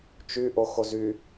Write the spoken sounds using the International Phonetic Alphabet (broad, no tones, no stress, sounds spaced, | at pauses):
t͡ʃ y ʔ o x o z y